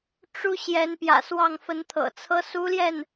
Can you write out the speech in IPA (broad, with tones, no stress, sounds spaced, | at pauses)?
ʈ͡ʂ u˧˥ ɕ j ɛ˧˥ n p j ä̰˨˩ s w ɑ˥˩ ŋ f ə˧˥ n t̪ʰ ɤ̰˨˩ t͡sʰ ɤ˥ s u˥ l j ɛ˥˩ n